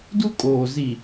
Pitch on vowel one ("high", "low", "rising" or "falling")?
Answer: high